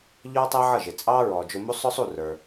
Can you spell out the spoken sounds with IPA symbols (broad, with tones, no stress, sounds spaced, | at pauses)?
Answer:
ʎ ɔː˥ tˤ æ˥ ʕ ʌ˥˩ ʒ ɪ˩ t͡sʼ ɑː˥ ɹ ɔː˩ d͡ʒ ʊ˧ m u˥ sˤ ʊ˥ sˤ u˥˩ r ə˞˩